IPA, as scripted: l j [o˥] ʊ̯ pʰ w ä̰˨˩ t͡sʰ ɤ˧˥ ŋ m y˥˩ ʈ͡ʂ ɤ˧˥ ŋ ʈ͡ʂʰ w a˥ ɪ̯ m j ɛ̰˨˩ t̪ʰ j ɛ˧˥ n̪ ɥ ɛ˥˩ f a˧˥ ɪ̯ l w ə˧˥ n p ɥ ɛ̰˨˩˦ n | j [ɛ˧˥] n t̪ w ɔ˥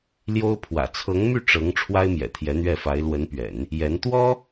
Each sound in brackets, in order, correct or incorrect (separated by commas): correct, correct